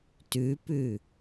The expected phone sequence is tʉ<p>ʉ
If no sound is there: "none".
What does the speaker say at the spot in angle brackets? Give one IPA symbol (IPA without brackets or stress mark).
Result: p